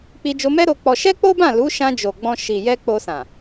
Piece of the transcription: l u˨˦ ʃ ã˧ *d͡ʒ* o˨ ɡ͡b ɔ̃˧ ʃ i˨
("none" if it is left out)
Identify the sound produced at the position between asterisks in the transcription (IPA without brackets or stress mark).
d͡ʒ